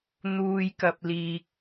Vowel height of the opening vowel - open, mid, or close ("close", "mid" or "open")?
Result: close